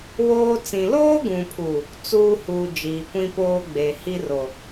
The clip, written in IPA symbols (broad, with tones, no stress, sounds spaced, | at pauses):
w oː˦ t͡s ĩ˨ l oː˦ ɡ ũ˨ pʰ u˨ | t͡s uː˦ h uː˨ d͡ʒ iː˨ kʷ ĩ˦ p oː˦ ɡ͡b e˨ h i˦ r o˨